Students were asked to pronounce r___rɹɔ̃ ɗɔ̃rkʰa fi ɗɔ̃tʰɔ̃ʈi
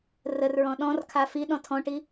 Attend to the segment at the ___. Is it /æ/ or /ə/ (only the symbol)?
ə